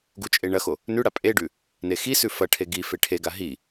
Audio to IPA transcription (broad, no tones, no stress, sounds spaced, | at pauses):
ɡ u t͡ʃʼ e ɳ ɐ x o | n ʉ ɽ a pʼ e ɖ ʉ | n e x i s ʉ f ɐ ʈʰ e ɡ i f e ʈʰ e ɡ a ɦ i